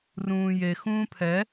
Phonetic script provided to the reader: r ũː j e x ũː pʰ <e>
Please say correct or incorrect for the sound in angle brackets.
incorrect